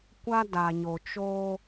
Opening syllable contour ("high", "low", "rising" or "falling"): high